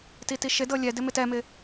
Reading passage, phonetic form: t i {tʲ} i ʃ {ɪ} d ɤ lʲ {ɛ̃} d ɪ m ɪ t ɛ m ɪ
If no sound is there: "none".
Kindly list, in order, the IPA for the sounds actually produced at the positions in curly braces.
t, ɪ, ɛ

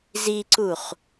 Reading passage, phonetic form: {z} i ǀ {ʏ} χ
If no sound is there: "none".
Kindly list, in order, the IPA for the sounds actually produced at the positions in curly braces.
z, u

